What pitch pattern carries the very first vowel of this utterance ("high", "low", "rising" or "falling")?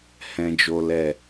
low